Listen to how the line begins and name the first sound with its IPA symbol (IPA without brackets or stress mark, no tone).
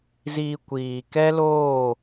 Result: z